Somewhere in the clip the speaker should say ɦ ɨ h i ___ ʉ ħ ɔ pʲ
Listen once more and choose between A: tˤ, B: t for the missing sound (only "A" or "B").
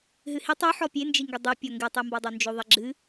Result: A